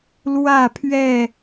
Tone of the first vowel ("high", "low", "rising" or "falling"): falling